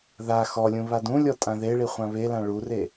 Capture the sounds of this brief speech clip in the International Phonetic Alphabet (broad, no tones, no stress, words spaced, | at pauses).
ða xɔlʲũ βadũlʲɔ tʼãðeɭi χʷãβelã ɭure